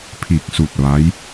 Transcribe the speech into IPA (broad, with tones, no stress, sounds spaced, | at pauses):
pʰ iː˧˩ k̚ s u˧˩ t̚ ʋ a˧˥ j